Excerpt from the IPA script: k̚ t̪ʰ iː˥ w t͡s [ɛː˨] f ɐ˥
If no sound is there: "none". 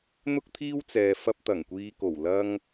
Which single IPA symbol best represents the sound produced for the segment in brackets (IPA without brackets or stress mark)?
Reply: ɛː˨